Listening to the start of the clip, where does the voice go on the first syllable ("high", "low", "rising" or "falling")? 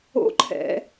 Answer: high